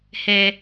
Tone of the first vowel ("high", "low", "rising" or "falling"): low